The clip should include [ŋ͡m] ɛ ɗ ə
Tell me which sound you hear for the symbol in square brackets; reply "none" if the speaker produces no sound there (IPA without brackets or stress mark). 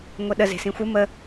ŋʷ